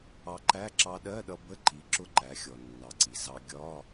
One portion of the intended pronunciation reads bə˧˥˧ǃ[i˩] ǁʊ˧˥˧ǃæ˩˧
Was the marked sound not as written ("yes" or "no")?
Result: yes